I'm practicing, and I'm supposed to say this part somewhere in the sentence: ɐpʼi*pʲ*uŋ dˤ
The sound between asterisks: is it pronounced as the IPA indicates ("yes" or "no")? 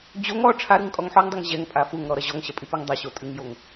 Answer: no